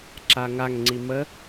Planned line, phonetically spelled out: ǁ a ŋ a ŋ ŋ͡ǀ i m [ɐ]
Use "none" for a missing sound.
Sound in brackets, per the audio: ə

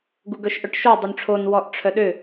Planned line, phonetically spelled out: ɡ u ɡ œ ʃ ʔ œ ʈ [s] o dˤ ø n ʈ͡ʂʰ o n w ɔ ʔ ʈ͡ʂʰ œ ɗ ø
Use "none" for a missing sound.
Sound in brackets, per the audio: ʃ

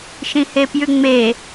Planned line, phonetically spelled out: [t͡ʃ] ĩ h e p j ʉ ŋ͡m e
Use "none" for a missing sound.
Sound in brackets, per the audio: ʃ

